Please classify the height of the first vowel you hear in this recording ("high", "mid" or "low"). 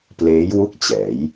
mid